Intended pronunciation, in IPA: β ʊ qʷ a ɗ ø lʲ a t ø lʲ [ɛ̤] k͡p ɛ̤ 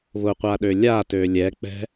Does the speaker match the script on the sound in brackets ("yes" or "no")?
no